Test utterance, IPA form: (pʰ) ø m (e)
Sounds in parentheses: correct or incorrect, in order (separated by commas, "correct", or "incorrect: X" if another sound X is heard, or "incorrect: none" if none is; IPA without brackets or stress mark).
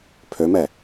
correct, incorrect: ɛ